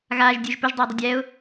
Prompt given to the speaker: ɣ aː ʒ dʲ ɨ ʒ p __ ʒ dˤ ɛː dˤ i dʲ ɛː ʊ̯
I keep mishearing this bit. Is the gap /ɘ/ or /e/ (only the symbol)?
ɘ